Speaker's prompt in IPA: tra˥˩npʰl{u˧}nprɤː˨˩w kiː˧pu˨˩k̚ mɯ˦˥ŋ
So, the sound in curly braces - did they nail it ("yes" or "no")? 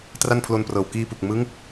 no